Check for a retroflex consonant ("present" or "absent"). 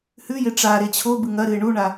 present